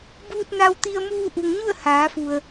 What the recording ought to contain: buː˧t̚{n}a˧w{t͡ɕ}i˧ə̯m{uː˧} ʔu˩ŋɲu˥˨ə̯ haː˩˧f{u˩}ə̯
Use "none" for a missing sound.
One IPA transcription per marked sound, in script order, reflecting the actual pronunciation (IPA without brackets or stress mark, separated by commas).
n, t̪, uː˧, u˩